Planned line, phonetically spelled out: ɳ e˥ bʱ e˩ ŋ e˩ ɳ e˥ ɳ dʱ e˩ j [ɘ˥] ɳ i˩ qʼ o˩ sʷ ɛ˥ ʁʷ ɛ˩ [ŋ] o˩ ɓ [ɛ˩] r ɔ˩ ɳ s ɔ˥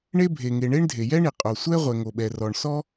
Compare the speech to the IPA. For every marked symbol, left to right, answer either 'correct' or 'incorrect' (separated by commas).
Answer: incorrect, correct, correct